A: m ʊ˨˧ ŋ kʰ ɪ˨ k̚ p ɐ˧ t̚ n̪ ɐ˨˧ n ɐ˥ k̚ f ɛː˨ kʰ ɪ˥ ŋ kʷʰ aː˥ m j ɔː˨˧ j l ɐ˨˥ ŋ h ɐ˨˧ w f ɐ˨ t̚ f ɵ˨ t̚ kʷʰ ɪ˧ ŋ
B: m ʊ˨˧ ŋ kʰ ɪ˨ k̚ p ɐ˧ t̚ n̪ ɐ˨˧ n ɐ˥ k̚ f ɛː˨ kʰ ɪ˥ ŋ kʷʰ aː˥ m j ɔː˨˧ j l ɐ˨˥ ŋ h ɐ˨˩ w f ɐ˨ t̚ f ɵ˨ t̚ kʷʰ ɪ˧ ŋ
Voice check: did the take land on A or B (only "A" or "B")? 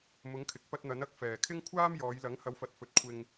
A